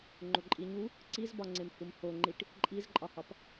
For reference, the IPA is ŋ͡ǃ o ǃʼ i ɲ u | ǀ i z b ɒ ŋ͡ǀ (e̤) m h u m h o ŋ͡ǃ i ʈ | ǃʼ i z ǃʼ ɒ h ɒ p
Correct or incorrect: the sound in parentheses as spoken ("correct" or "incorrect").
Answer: incorrect